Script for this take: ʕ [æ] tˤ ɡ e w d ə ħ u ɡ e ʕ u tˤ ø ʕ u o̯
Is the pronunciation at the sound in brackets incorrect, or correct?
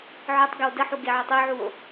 incorrect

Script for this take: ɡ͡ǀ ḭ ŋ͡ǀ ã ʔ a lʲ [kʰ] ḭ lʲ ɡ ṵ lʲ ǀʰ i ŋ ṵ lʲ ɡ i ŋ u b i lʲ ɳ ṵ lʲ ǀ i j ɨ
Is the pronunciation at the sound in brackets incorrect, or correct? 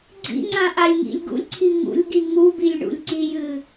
incorrect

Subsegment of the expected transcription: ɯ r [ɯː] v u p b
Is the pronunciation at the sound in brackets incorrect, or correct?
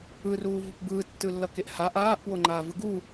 incorrect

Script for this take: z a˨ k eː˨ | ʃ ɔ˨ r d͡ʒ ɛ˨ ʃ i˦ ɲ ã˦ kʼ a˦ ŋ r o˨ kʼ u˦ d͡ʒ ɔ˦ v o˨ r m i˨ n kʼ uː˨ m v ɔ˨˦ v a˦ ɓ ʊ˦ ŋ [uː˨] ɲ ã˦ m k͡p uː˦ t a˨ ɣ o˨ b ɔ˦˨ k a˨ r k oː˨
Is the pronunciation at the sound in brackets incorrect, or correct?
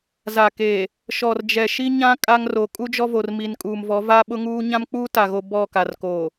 incorrect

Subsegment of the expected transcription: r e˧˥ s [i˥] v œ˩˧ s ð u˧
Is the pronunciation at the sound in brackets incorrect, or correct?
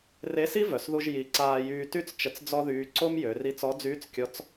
correct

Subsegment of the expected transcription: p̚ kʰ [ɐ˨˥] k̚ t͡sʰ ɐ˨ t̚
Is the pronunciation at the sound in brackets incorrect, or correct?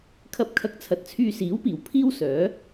incorrect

